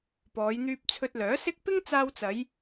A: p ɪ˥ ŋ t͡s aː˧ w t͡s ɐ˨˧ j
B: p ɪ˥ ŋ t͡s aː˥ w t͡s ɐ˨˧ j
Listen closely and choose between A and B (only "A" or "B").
A